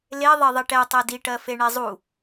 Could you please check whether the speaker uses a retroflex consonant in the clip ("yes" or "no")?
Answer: yes